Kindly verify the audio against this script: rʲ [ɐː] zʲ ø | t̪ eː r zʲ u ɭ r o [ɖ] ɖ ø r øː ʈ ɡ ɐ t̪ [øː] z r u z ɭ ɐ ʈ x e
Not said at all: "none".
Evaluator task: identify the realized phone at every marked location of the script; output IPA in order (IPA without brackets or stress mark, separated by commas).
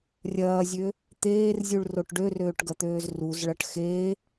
ɐː, ʈ, øː